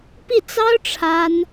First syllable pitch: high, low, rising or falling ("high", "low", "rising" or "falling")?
falling